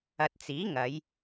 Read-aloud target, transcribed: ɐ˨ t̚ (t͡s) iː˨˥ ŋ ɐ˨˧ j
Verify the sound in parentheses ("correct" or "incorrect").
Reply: correct